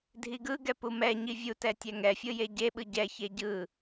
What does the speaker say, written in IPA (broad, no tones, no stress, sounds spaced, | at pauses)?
dʱ i ɡ ɯ ɡ ɛ p u m ɛ ɲ i vʲ u t ɛ tʲ ɛ ŋ ɛ fʲ ɯ j e ɟ e ɓ ɯ ɟ ɛ ç e ɟ ɯ